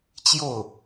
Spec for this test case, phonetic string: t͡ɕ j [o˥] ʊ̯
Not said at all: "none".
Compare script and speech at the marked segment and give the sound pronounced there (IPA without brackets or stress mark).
o˥˩